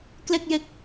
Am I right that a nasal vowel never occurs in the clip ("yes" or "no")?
yes